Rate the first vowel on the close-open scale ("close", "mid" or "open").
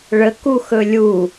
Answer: mid